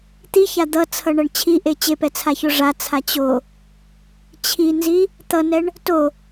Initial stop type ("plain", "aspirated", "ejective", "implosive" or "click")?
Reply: plain